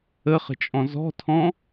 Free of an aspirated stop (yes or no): no